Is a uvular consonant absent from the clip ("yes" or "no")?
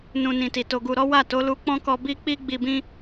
yes